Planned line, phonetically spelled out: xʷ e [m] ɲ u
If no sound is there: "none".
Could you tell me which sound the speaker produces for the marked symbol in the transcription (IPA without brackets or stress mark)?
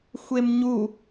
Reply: m